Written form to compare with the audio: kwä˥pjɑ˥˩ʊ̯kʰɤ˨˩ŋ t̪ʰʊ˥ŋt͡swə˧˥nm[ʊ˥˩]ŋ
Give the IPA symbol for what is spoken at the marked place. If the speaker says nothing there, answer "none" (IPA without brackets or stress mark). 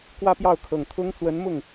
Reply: ʊ˥˩